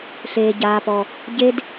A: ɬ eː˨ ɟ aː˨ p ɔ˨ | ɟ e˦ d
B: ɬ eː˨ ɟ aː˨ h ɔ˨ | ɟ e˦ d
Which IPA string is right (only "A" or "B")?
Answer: A